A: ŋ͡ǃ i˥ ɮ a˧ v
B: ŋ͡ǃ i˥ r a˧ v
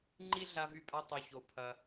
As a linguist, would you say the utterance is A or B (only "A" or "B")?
A